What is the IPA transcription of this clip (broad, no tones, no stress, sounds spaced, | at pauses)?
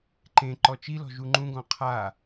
ǃ ẽ ǃ ɔ t͡ʃ i l ɔ̤ ʒ u ŋ͡ǃ ũ ɡ ɔ̃ qʰ a